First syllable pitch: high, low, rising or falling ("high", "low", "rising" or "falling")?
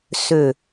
low